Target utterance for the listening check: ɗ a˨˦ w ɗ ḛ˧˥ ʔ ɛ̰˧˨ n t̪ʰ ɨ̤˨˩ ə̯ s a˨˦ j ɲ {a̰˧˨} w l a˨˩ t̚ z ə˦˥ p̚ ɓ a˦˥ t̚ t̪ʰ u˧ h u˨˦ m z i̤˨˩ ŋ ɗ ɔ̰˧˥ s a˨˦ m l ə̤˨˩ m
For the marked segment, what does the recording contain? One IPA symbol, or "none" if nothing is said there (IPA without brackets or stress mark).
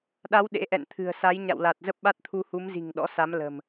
a̰˧˨